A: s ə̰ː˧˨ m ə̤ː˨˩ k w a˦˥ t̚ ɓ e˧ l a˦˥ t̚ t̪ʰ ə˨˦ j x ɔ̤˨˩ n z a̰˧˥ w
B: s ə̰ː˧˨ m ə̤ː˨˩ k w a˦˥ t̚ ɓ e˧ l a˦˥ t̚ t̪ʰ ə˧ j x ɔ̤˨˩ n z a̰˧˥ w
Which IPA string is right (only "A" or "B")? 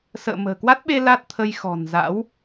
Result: B